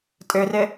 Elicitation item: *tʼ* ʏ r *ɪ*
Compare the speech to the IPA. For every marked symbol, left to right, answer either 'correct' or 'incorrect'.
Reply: correct, correct

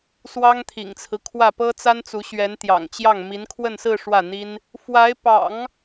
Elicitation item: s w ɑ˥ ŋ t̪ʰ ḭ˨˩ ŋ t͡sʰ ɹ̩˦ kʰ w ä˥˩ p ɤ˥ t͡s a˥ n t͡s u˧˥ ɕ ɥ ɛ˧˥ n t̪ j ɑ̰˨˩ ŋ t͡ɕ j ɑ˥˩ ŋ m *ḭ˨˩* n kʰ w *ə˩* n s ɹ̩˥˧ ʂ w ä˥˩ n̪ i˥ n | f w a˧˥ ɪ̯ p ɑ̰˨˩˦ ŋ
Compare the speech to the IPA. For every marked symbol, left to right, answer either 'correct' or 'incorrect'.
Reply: incorrect, incorrect

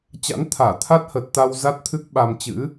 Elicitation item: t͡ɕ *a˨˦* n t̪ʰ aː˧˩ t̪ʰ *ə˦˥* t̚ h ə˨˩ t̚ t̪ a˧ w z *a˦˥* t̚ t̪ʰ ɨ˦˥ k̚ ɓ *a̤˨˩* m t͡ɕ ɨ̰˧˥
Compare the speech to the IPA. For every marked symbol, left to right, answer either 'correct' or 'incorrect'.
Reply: incorrect, incorrect, correct, incorrect

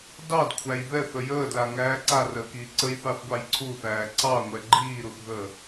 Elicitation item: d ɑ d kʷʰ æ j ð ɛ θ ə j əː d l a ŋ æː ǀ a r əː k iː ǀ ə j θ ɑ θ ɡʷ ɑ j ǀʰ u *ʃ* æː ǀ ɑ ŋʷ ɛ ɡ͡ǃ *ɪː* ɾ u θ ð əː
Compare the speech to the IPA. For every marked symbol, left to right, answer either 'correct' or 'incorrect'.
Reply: incorrect, incorrect

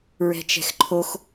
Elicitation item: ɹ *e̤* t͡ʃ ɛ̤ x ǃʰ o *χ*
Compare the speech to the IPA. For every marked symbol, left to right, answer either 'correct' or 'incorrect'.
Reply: incorrect, incorrect

